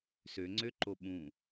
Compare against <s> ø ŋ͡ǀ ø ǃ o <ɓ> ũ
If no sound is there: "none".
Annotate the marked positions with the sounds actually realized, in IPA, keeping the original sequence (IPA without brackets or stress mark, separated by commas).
s, ɓ